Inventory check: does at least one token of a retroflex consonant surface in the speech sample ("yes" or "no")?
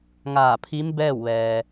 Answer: no